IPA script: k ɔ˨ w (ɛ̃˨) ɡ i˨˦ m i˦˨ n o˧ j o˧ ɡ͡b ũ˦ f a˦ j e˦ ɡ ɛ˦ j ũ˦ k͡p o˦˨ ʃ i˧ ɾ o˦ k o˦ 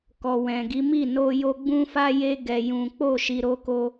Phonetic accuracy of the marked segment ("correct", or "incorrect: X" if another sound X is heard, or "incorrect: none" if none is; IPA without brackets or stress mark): correct